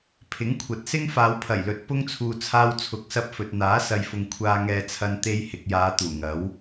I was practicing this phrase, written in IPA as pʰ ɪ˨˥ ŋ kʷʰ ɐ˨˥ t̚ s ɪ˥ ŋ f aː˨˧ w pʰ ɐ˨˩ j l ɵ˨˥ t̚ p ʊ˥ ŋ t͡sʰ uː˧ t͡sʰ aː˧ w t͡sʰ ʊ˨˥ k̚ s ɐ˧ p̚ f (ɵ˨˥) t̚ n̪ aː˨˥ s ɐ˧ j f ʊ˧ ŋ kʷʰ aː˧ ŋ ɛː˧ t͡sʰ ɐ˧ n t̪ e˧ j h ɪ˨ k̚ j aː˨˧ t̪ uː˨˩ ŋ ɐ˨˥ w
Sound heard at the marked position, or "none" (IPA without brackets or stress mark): ɵ˨